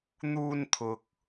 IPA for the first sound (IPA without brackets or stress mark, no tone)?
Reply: n̪